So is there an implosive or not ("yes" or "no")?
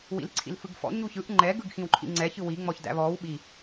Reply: yes